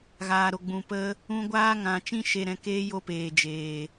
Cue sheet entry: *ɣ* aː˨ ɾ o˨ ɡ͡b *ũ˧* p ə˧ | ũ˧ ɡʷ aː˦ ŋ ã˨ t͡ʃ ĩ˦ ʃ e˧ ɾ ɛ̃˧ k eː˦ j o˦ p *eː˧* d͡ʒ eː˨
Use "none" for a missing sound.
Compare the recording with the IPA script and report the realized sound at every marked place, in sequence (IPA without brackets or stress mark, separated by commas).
ɣ, ũ˨, eː˨